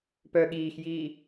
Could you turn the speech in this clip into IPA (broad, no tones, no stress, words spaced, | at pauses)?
pœ ɠiːxjiː